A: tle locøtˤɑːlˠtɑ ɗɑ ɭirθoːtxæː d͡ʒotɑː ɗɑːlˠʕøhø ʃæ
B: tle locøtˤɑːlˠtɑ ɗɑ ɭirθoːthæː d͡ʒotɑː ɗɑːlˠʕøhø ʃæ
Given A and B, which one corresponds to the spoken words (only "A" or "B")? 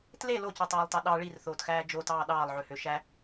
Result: A